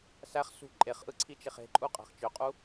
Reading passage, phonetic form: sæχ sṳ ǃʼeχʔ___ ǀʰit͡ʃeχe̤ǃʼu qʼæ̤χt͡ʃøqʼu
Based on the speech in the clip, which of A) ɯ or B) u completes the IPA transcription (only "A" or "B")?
A